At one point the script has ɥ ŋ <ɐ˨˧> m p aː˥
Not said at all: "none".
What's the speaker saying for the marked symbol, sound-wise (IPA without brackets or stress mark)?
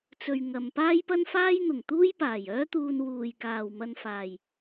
ɐ˧